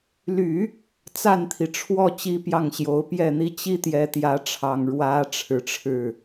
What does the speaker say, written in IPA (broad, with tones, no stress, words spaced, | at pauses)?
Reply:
ly˨˩˦ | t͡sa˥˩nt̪ʰi˩ʈ͡ʂʰwɔ˥˩ t͡ɕi˥pjɑ˥˩ŋɕjo˧˥ʊ̯ pjɛ˥˩n̪i˥ t͡ɕi˥t̪jɛ˧˥t̪jä˧˥ʈ͡ʂʰɑ˨˩ŋ ɻwä˧˥ ʈ͡ʂʰɻ̩˨˩ʈ͡ʂʰɻ̩˥˩